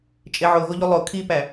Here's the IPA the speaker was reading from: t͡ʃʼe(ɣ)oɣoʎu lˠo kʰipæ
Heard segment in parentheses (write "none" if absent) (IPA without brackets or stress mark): ʕ